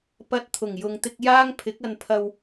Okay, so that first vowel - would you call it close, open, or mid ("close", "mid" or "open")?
open